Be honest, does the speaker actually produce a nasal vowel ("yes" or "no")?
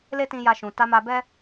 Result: yes